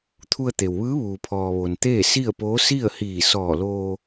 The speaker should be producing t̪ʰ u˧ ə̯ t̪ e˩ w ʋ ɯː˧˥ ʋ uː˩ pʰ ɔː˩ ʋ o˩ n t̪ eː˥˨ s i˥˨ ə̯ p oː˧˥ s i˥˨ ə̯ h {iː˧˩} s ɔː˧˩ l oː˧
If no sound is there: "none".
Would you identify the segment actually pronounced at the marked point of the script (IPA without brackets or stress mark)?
iː˧˩